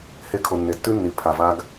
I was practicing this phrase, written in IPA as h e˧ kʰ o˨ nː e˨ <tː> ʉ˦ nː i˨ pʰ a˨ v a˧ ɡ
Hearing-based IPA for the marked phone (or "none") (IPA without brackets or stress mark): tː